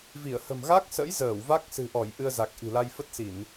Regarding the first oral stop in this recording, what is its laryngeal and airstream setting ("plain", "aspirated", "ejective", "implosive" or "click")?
plain